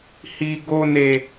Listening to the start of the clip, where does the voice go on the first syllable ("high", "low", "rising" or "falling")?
low